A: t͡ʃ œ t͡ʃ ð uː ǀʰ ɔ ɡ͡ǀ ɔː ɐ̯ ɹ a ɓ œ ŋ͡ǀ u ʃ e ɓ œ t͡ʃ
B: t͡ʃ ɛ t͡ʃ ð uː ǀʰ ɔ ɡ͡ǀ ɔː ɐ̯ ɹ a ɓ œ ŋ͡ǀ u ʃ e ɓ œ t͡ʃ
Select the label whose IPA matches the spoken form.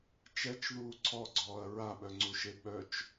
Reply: B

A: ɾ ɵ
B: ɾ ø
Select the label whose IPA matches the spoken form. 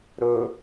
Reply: A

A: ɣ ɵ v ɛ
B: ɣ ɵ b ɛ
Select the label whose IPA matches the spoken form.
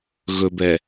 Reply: B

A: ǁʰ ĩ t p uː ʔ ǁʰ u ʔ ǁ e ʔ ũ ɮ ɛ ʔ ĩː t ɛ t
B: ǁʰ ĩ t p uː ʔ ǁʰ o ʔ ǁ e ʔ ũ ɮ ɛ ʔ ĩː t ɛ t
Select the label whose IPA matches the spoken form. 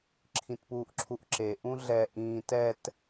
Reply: A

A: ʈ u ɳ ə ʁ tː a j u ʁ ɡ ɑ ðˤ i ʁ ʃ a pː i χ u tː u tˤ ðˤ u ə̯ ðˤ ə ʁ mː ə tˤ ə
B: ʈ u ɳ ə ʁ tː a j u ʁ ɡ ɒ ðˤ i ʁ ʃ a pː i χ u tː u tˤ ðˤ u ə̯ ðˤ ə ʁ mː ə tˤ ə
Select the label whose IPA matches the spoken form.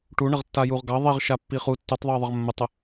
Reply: A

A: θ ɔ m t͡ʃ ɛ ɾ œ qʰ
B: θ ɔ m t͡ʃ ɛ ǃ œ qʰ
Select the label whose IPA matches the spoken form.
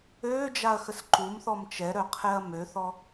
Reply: A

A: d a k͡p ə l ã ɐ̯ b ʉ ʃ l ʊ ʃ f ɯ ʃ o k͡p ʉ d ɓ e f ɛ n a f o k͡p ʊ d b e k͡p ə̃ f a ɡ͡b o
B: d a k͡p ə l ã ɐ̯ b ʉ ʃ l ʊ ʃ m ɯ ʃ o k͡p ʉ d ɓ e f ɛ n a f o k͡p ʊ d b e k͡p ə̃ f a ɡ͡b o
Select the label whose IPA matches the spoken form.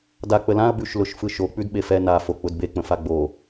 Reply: A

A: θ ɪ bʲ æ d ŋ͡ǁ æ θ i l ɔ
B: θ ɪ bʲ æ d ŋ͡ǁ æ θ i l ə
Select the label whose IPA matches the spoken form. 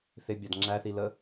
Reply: B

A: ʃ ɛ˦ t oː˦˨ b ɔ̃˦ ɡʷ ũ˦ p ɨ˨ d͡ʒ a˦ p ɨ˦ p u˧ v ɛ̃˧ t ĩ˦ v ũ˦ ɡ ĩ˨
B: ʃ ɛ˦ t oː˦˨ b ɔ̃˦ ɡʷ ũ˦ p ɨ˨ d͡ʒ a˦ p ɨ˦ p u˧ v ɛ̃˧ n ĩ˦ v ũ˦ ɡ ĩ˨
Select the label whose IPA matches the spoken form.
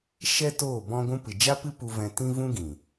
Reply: A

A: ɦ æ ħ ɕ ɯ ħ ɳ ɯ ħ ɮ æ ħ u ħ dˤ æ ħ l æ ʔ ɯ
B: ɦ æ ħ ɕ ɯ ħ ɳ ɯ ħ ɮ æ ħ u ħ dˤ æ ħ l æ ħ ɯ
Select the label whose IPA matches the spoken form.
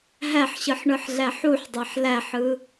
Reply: B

